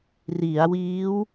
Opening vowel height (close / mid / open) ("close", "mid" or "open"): close